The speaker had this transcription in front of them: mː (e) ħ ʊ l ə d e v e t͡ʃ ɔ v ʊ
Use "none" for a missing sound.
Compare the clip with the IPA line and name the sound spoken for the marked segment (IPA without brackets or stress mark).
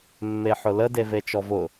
e